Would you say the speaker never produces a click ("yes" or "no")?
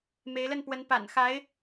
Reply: yes